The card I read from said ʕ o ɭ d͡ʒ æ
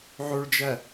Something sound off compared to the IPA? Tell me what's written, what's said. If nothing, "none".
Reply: none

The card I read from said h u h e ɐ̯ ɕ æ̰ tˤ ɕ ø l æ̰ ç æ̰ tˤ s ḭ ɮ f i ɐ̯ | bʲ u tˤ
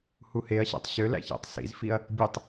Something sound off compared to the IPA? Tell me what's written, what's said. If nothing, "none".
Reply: ɮ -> z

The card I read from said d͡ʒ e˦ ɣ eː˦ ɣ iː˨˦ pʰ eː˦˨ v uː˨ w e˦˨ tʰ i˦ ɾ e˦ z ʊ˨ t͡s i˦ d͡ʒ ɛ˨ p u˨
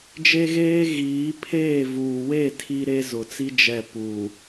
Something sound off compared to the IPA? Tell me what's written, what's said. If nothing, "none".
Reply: none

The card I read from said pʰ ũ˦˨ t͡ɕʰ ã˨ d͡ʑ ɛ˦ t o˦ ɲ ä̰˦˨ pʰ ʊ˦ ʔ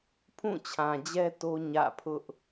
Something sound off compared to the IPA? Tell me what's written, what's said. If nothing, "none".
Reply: none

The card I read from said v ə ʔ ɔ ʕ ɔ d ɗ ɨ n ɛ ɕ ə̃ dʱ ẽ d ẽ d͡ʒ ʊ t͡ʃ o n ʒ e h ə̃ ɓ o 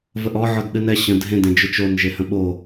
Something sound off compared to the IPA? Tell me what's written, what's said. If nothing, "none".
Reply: none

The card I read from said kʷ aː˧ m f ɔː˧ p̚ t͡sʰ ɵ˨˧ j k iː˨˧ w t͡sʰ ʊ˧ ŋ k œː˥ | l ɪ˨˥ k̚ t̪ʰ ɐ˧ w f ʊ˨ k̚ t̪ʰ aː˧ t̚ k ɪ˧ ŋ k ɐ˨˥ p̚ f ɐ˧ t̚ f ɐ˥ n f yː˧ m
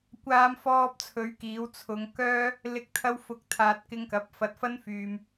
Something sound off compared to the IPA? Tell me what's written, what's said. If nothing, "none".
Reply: j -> ɥ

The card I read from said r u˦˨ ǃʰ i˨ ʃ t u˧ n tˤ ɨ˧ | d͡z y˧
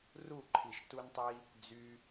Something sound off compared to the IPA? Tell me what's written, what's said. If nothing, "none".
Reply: ɨ˧ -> i˧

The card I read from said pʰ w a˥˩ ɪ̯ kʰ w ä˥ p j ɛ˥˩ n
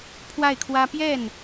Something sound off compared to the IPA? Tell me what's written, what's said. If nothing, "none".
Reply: none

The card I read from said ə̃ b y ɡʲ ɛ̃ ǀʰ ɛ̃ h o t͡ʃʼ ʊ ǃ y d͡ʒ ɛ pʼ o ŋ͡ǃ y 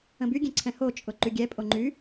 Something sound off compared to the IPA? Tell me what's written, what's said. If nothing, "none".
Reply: d͡ʒ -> ɡʲ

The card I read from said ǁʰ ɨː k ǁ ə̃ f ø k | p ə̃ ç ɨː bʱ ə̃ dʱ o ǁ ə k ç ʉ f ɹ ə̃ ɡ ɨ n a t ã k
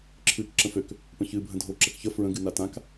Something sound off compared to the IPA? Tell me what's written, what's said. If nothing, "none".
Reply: ʉ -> ə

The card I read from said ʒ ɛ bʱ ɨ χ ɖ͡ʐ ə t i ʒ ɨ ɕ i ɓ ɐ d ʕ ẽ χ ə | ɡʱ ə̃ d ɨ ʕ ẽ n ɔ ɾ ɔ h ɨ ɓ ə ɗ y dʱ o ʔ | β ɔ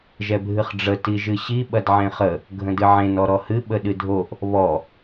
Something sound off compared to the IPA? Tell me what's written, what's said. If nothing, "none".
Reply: y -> ɨ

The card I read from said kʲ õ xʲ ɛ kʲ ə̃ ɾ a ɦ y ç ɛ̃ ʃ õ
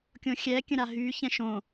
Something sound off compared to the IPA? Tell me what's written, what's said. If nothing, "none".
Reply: none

